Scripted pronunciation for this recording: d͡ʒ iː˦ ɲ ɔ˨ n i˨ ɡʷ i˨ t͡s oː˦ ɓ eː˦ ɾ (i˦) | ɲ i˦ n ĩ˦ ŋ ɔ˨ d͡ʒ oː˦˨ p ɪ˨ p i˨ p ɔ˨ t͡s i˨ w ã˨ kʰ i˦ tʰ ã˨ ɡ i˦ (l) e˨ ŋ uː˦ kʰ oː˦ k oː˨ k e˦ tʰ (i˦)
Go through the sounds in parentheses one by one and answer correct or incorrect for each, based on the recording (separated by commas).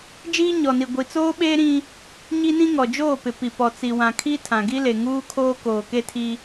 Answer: incorrect, correct, correct